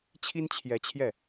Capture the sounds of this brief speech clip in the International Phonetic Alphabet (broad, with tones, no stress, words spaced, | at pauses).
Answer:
t͡ɕʰi˥nt͡ɕʰjɛ˧˥t͡ɕʰjɛ˥˩